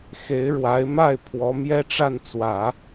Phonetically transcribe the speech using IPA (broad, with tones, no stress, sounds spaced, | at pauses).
x e˧˥ ɪ̯ ɻ w a˧˥ ɪ̯ m a˥˩ ɪ̯ pʰ w ɔ˧˥ m j ɛ˥ ʈ͡ʂ a˥˩ n t͡s w ä˨˩˦